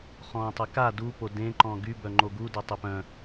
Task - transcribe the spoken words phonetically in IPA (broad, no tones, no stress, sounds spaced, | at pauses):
χ ɔ̃ tˤ ə k a d u p o d ẽ ǃ ɔ̃ ɡ y b œ ŋ͡ǃ o ɡ u d œ tˤ e p œ̃